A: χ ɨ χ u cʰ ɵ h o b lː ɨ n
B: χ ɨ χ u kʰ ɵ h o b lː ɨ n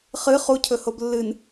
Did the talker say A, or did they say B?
A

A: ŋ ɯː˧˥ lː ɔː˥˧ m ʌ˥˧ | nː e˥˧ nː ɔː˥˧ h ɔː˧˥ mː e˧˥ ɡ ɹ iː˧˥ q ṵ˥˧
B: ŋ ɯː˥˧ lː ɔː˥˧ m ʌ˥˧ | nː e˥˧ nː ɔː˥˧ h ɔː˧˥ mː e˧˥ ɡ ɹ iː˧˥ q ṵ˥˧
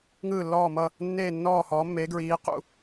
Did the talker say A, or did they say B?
B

